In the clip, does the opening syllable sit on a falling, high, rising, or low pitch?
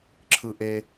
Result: high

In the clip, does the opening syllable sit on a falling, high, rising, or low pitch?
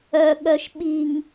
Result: low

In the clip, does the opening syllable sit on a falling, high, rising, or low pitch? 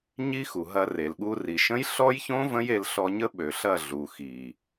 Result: high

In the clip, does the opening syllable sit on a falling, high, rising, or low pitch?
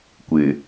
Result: low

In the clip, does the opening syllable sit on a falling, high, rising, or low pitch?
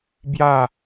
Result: falling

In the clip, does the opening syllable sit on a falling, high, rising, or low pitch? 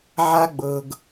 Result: high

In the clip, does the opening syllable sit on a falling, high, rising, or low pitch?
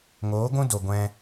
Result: rising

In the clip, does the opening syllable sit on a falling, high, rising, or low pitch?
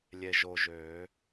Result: low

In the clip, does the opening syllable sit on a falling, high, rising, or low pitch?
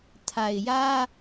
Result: low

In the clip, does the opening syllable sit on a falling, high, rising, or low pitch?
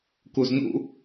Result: low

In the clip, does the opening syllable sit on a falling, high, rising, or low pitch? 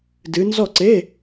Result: rising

